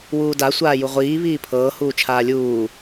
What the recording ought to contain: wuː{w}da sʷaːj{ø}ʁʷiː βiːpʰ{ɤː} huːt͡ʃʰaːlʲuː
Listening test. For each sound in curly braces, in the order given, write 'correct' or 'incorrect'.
incorrect: none, incorrect: u, correct

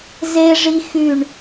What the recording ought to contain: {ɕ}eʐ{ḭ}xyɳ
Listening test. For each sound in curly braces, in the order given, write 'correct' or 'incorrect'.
incorrect: z, incorrect: i

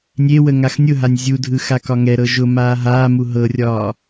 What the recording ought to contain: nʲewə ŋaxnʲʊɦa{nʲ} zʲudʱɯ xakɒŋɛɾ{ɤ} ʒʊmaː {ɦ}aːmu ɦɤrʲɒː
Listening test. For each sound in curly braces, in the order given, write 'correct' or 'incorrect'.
correct, correct, correct

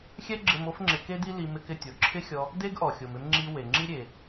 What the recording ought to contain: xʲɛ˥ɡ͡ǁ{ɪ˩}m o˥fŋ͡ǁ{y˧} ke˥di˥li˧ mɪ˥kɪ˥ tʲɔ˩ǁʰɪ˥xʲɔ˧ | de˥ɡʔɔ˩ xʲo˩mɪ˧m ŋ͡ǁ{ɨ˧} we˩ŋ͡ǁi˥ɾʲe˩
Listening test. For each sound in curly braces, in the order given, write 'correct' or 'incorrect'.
incorrect: ɪ˧, incorrect: ɪ˧, incorrect: i˧

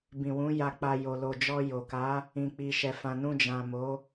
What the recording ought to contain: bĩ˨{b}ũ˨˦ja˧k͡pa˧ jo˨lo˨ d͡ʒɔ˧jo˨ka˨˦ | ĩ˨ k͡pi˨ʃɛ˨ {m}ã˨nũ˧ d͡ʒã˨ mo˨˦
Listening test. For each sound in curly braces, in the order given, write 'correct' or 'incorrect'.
incorrect: w, incorrect: f

